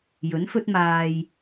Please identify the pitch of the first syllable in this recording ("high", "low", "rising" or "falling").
rising